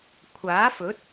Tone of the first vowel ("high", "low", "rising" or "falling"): rising